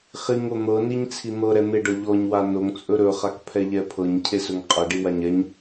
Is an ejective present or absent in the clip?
present